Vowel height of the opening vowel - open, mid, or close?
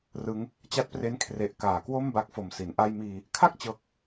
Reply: close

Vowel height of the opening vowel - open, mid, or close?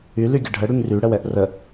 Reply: close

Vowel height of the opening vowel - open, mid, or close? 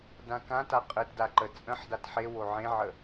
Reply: open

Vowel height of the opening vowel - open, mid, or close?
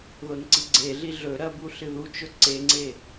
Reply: mid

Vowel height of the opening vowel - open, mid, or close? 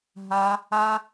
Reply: open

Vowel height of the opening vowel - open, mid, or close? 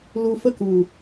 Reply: close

